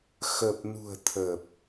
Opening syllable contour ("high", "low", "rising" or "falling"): low